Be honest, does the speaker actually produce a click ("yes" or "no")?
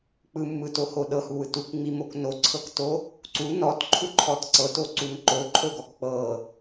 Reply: yes